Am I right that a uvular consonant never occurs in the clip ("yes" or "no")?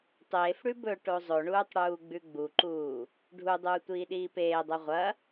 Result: no